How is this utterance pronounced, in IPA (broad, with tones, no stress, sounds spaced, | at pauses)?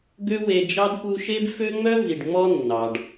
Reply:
ɡ ø˥ w e˦ d͡ʒ ɑ˥ d p u˦ ʃ e˥ b f ø˥ ŋ͡m œ˥ v i˨ ɖ ŋ͡m ɔ˦ nː ɑ˩ ɖ